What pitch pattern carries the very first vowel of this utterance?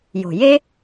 low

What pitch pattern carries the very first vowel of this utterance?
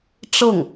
falling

